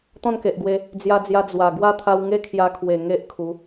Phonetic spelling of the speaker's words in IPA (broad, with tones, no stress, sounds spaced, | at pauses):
t̪ ɔ̃˥˧ n k e˨ ʔ ɡ w e˧ | d͡z j a˧ d͡z j a˧ d͡z w a˨˩ ɡ w a˦ t̪ʰ a˧ w ŋ e˦ kʰ j a˧ kʰ w e˨˩ ŋ e˦ ʔ kʰ u˨˦